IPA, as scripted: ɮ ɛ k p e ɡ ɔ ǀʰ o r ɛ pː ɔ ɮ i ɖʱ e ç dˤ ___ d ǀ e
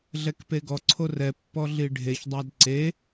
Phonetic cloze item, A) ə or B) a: B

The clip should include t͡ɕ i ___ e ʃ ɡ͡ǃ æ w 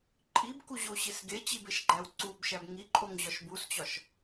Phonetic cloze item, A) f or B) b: B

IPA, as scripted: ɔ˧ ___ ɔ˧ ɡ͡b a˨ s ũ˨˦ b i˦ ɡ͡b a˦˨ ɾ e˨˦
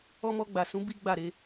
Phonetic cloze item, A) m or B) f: A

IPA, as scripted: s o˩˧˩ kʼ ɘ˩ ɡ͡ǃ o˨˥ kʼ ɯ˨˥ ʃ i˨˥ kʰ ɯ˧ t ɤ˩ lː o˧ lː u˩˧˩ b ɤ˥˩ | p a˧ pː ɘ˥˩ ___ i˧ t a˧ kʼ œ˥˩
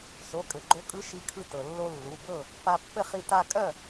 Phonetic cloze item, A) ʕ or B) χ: B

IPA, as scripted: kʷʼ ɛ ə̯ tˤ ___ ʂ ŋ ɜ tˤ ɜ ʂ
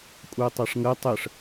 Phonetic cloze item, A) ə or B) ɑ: B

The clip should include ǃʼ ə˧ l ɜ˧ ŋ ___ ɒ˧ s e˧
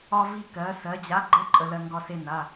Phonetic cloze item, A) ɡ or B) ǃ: A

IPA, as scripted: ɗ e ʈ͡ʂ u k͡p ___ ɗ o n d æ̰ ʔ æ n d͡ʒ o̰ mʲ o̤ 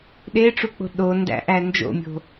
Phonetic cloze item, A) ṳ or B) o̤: B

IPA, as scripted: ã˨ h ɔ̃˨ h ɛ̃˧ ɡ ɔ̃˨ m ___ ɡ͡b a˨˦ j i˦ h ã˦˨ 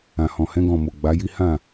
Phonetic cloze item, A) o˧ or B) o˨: B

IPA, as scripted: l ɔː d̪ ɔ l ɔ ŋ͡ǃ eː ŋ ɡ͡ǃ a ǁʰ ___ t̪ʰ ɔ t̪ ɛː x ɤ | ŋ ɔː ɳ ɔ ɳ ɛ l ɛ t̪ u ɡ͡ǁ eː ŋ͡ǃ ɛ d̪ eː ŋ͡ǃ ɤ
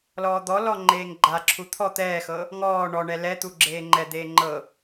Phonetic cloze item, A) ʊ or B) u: B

